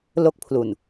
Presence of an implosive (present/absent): absent